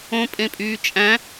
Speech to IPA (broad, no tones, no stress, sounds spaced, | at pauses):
õ pʼ ẽ pʼ yː t͡ʃʼ æ̃